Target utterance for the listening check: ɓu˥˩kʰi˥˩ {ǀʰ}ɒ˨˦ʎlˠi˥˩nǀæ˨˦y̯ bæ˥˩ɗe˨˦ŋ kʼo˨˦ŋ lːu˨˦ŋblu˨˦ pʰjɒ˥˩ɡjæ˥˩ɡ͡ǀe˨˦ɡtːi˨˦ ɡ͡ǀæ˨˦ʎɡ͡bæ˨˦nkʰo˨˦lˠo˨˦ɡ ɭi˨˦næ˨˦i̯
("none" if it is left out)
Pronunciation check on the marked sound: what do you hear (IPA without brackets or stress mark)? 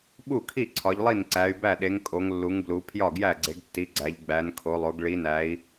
ǀʰ